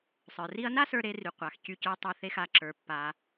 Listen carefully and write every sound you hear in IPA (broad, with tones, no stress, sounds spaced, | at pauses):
sˤ ə˞˩ r i˥ ɐ̯ n a˥ s ə˞˧ ɾ e˧ r y˩ qʷ a˩ x c y˧ c ə˞˧ tˤ e˧ θ e˧ x a˩ ǁ ə˞˩ pː a˩